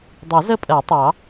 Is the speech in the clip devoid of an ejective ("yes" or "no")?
no